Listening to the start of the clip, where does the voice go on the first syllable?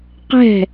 falling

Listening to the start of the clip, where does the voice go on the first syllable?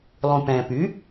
low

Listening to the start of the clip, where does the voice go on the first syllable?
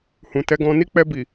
low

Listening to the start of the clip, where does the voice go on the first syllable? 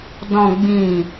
low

